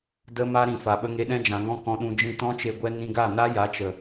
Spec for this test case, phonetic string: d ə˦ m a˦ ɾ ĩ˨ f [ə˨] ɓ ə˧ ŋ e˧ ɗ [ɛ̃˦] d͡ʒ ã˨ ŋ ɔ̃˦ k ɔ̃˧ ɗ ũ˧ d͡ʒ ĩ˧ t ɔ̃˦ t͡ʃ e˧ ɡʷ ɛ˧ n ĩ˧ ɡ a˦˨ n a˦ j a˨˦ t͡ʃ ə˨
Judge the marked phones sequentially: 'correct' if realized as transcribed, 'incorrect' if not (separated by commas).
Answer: incorrect, correct